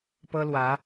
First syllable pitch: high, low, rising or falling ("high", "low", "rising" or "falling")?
high